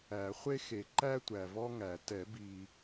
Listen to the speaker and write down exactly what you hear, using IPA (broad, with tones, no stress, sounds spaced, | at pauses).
æ˨˩˦ χʷ e˥ x e˨˩˦ ǃ æ˥ tʷ æ˨ v ɔ˥ ŋ æ˨˩˦ t ɛ˨˩˦ b i˨